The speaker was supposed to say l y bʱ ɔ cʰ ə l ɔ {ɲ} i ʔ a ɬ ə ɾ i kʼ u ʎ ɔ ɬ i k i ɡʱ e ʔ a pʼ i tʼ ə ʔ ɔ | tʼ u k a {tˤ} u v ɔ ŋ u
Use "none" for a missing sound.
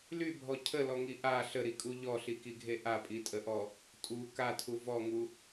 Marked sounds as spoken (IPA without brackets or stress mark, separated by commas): ŋ, tʰ